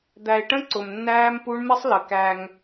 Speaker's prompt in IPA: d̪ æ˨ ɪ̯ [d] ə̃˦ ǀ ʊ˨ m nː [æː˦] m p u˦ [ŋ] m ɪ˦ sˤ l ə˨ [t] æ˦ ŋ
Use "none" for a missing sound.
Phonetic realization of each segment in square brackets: ʈ, æː˦, ɳ, k

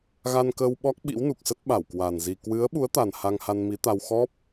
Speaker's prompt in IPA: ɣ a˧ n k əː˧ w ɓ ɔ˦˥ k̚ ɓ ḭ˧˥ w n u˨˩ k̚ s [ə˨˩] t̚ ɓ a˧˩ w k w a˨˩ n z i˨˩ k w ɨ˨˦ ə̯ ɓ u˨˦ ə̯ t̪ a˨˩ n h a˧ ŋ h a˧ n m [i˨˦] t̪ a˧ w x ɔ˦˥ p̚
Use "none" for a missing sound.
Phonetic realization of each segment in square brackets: ə˦˥, i˨˦

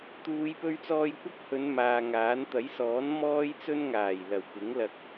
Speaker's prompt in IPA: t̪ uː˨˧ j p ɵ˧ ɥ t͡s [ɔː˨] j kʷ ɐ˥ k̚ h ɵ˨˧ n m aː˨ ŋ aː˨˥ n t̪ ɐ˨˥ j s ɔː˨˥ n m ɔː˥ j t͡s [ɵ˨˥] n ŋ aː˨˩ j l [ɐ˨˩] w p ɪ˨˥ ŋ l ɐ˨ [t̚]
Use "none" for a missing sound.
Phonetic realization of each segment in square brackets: ɔː˧, ɵ˥, ɐ˨˩, k̚

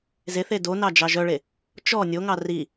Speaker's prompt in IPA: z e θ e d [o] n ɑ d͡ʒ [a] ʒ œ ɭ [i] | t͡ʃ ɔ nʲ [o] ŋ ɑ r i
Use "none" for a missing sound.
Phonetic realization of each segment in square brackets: o, ɑ, e, o

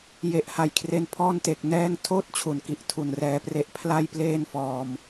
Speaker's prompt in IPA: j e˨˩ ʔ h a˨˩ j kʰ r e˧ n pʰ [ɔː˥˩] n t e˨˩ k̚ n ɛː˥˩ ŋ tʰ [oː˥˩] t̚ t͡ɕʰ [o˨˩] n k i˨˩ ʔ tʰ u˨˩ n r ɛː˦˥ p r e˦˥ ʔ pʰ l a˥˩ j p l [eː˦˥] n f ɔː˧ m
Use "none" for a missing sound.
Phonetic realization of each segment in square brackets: ɔː˥˩, oː˥˩, u˨˩, eː˥˩

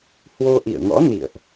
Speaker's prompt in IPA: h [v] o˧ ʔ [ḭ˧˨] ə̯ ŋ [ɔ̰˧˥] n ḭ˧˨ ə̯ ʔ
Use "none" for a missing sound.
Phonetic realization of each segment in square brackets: w, ḭ˧˨, ɔ̰˧˥

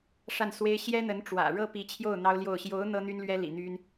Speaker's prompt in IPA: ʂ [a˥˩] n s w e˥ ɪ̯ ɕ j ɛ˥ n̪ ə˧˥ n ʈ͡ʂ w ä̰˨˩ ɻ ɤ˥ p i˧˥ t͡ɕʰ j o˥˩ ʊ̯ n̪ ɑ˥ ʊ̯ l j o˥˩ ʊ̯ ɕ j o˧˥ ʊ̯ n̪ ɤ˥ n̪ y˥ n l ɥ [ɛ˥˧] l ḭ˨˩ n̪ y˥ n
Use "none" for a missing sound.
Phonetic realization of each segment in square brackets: a˥˩, ɛ˥

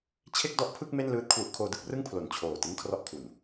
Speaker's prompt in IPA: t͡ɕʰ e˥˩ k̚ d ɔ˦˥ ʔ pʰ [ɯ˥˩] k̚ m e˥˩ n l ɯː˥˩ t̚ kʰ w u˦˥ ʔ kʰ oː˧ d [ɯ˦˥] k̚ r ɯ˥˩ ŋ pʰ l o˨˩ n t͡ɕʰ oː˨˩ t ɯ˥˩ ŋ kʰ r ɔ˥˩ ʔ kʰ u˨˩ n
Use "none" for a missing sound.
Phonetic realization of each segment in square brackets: ɯ˥˩, ɯ˥˩

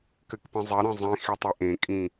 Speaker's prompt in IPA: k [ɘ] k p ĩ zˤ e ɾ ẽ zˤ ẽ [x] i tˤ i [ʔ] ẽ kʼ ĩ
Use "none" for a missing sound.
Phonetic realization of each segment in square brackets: ɘ, x, ʔ

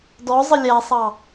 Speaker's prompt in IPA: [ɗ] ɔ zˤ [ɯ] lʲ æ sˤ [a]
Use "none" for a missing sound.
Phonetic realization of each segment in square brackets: d, ə, ɑ

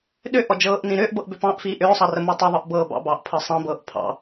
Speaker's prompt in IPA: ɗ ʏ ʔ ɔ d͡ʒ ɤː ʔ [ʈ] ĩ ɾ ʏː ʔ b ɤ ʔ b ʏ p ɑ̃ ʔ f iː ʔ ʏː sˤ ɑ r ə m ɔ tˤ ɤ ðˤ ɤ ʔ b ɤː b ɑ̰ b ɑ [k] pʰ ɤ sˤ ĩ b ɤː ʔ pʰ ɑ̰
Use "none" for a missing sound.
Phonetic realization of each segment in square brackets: n, ʔ

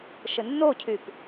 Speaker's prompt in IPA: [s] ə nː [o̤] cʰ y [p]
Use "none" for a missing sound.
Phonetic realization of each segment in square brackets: ʃ, o, p

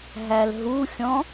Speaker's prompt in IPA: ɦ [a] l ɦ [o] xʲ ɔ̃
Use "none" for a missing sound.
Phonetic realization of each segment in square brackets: æ, u

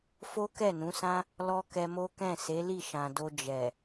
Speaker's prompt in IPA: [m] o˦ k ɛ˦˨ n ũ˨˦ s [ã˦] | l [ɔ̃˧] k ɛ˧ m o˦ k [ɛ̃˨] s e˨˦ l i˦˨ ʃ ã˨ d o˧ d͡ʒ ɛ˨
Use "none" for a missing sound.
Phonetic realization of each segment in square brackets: f, ã˦, ɔ˧, ɛ̃˦˨

